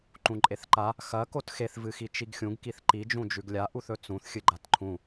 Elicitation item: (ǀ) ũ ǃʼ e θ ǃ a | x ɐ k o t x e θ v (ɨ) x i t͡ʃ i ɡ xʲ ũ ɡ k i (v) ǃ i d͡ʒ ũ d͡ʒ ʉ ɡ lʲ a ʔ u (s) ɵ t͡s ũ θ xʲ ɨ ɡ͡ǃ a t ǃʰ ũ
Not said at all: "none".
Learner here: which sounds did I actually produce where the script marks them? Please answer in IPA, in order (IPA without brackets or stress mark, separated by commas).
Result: ǃ, ɨ, θ, θ